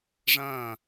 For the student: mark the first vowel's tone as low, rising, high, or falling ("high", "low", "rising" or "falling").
falling